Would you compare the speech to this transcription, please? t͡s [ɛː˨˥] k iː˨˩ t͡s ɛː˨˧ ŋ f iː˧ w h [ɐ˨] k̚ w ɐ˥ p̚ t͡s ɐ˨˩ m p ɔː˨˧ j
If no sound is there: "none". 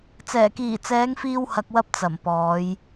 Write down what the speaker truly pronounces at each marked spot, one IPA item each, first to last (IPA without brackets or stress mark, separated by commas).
ɛː˨˩, ɐ˨